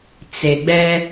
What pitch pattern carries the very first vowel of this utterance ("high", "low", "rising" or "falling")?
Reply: low